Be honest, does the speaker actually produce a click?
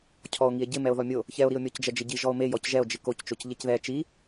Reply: no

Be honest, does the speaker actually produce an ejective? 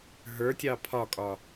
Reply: yes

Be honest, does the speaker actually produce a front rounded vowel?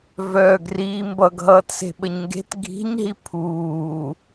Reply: yes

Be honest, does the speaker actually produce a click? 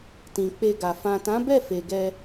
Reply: no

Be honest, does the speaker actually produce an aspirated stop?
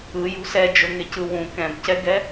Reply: no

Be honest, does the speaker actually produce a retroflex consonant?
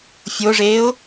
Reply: yes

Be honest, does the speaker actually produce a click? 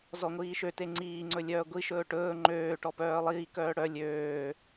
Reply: yes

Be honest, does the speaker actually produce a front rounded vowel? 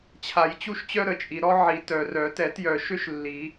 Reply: yes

